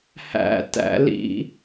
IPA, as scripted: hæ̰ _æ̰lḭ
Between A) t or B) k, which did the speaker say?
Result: A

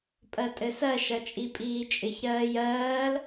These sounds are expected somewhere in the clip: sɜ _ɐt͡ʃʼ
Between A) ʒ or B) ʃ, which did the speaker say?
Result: B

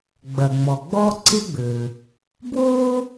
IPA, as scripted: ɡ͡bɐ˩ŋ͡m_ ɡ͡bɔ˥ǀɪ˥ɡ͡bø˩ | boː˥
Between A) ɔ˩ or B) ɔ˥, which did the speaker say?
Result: A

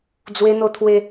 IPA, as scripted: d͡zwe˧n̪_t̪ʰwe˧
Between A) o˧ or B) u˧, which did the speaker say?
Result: A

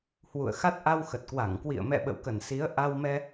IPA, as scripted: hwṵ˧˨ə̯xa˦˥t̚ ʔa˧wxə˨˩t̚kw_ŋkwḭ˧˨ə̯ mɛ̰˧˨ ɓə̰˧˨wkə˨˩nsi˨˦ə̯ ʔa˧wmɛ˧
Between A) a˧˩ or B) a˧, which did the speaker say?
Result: A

